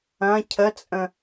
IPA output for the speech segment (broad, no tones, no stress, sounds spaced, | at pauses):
ɐ̃ cʰ ə t͡sʼ ə̃